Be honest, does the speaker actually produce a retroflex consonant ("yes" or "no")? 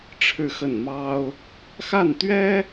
yes